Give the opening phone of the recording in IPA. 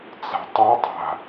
t͡s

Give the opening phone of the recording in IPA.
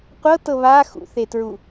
qʷ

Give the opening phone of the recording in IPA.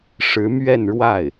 ʂ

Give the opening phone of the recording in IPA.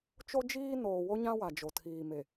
t͡ʃ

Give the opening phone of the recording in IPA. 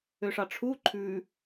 ø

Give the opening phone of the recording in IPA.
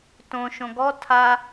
t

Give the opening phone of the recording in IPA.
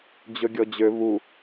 d͡ʑ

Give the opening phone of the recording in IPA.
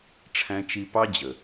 ʈ͡ʂʰ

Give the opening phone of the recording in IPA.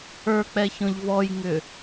ə˞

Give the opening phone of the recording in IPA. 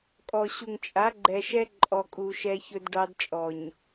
kʼ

